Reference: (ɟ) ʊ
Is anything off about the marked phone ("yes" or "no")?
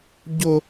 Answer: no